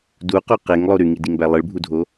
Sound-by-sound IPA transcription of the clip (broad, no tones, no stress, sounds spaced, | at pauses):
d u q o q e ŋ lˠ o ɾ y ŋ i d i ŋ b æ lˠ ɯ ɭ bʱ u dʱ o